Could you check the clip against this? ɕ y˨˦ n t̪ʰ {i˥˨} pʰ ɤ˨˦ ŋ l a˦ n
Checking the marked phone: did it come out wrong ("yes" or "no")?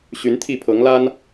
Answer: no